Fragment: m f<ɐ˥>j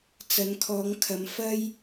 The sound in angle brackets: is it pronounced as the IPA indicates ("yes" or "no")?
yes